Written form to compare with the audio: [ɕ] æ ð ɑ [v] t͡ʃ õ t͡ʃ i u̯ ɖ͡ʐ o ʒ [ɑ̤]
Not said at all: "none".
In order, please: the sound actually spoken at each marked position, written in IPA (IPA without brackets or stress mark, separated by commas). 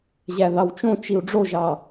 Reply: ʑ, w, ɑ